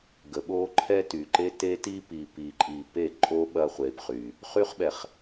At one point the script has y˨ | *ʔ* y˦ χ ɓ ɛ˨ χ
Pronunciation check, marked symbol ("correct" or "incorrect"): incorrect